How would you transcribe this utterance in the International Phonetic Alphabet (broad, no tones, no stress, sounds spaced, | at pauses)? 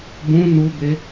b ũ n u b e